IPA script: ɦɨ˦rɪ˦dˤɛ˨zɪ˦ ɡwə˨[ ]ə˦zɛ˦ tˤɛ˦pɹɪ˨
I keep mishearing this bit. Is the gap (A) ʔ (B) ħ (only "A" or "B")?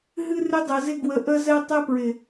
A